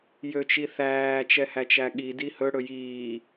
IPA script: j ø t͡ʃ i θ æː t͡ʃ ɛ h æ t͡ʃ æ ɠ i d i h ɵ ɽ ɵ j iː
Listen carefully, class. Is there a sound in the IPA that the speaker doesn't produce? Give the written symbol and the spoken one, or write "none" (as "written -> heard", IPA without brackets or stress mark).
none